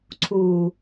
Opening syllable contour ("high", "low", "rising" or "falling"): low